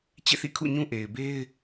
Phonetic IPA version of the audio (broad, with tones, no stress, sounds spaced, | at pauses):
t͡ɕ ḛ˦˨ θ ḭ˦˨ kʰ ṵ˦˨ ɲ ũ˦ ʔ e˨ ɪ̯ b e˦ ɪ̯